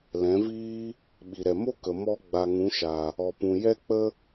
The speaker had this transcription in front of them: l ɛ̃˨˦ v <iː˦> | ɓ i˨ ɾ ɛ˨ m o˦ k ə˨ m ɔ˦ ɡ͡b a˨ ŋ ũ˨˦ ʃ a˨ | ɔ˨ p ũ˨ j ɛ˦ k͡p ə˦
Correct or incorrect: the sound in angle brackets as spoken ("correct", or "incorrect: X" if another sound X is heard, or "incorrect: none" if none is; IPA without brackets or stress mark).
correct